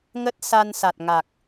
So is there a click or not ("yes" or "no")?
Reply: no